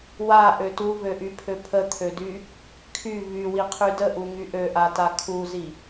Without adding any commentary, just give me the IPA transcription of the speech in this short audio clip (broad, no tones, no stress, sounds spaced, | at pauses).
w a ʔ ø t u v ø ʔ y pʰ ø pʰ ə t̪ʰ ø d y | kʰ y v y w i qʰ y d ə ʔ u ŋ y ʔ ø ʔ a t a kʰ u z i